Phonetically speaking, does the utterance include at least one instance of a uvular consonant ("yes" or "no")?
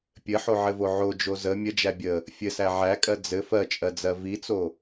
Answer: no